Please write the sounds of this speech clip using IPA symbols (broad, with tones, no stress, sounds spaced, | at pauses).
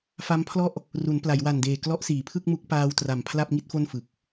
f a˦˥ m pʰ l ɔ˥˩ ʔ | r u˩˦ n p l a˩˦ j w a˨˩ n d eː˨˩ k l ɔ˦˥ ʔ s iː˩˦ pʰ ɯ˥˩ k̚ m u˦˥ k̚ p aː˧ w t r a˨˩ m pʰ l a˥˩ p̚ ŋ i˥˩ t̚ f o˥˩ n f ɯ˨˩ k̚